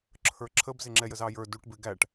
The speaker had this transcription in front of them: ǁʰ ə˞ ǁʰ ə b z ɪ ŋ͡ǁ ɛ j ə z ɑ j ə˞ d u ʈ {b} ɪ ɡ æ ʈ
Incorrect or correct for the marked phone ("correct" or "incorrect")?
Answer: correct